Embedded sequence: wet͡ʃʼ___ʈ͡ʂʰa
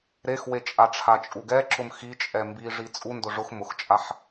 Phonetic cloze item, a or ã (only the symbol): a